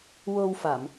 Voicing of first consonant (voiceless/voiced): voiced